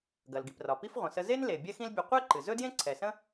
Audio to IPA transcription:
ɡ ɐ˩ l ɡ i˩ p r ɒ˩ p i˥ f ʁʷ ə̃˩ s ə˧ z e˥ n l e˩ bʲ ɛ˥ x ĩ˥ l bʲ ɵ˧ qʷ ɛ˥ ǃ ɨ˩ z ɵ˥ d j ẽ˥ ǀʰ ɛ˩ s ə̃˥

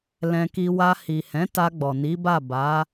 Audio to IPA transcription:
l ɛ̃˧ k i˧ w a˧ h i˨ h ɛ̃˨˦ t a˧ ɡ͡b ɔ˨ n i˨˦ b a˦˨ b a˨˦

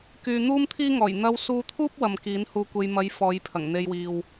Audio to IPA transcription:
k yː˨ n̪ uː˥ m t̪ʰ iː˥ ŋ ɔː˨˩ j n̪ ɐ˧ w s uː˧ t̪ʰ uː˥ p̚ w ɐ˨ m k iː˨˥ n h uː˧ kʷ e˧ j m ɐ˨˧ j f ɔː˨˧ j pʰ ɐ˨˩ ŋ n̪ e˧ j w iː˨ w

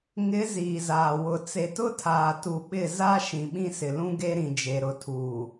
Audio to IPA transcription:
ŋ ɪ˨˦ z iː˨ z aː˨ w ʊ˨ t͡s e˨ t ʊ˦ tʰ aː˨ t u˨ ɓ ɪ˦˨ z a˦ ʃ ĩ˨ ɓ ĩ˦ s ɪ˨ l ũ˦ ɡ e˦ ɾ ĩ˨ d͡ʒ e˨ ɾ ʊ˨ tʰ uː˨

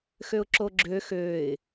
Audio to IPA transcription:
x ø ʊ̯ ǁ o ɡ͡ǁ ø x ø ɪ̯

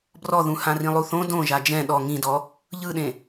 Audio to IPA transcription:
b r ɔ ð ũ h ã r ĩ lˠ u θ õ d õ ʒ a d͡ʒ ɛ̃ ɗ ɔ ŋ ĩ d ɔ | ʎ ɯ ɗ ẽ

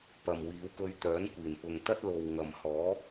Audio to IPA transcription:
p ɐ˨ m w iː˨˧ w k ɵ˧ ɥ t̪ œː˨˥ n kʷ iː˨˩ n p ʊ˨ ŋ t̪ ɐ˥ t̚ l o˨ w ŋ ɐ˨ m h ɔː˨˥

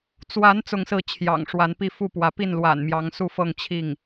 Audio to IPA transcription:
t͡s w a˧˥ n t͡s ʊ˥˧ ŋ s ɹ̩˥˩ t͡ɕʰ j ɑ̰˨˩ ŋ ʂ w a˧˥ n p i˥˧ f u˥˩ p w ä˧˥ p i˥˩ n l w a̰˨˩ n m j ɑ˧˥ ŋ s u˥˧ f ɤ˥˧ ŋ t͡ɕʰ i˥˩ ŋ

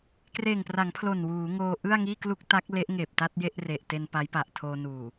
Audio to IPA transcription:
k r eː˨˩ ŋ p r a˩˦ ŋ pʰ l o˨˩ n w uː˩˦ ŋ oː˧ ʔ ɯ˥˩ a̯ ŋ iː˥˩ k l u˥˩ k̚ t a˦˥ k̚ l e˦˥ ʔ ŋ eː˨˩ p̚ t a˥˩ t̚ j e˥˩ ʔ r e˨˩ ʔ t e˧ n p a˦˥ j p a˨˩ ʔ tʰ oː˧ n uː˨˩

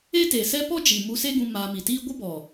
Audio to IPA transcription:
e˦ t e˨ s ɛ˦ p ɔ˦ d͡ʒ i˨ m u˧ s e˦ ɡ ũ˧ m aː˧ m i˨ t iː˦ ɡʷ ə˦ b ɔ˨

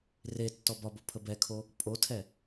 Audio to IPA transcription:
r e tː ɔ b ɒ b o pʰ ə b ɛ kʰ o | pʼ o tʰ ɛ

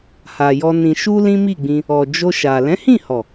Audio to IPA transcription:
h a˨ j ɔ˧ n ĩ˨ ʃ u˧ l ĩ˦ m i˦˨ ɡ͡b ĩ˧ | ɔ˨ d͡ʒ o˧ ʃ a˨ l ɛ̃˨˦ h ĩ˦˨ h ɔ˨

